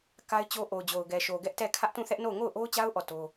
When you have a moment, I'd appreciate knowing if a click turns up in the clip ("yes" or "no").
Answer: no